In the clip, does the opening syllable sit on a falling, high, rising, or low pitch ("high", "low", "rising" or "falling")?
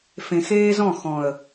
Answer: low